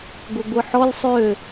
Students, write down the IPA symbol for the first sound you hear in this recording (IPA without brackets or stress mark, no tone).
ɡʷ